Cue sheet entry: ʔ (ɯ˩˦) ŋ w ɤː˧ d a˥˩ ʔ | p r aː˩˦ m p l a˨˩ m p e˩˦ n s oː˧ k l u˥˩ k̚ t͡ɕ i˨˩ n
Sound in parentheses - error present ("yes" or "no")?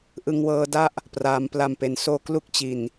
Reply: yes